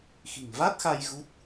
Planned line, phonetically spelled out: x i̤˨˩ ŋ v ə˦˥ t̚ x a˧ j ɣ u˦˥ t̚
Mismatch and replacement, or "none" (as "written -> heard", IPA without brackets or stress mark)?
ə˦˥ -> a˦˥